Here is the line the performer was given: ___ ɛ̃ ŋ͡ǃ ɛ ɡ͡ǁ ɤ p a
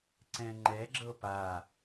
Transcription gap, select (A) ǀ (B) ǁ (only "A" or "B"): A